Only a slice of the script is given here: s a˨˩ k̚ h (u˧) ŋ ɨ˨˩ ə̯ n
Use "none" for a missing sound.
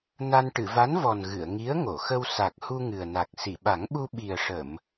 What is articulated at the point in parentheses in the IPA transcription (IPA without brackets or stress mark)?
u˧